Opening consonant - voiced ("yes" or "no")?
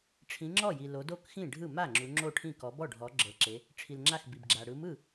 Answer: no